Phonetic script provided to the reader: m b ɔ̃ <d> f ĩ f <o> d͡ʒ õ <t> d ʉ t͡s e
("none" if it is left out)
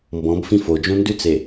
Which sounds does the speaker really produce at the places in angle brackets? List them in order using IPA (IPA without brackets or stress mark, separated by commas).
b, o, n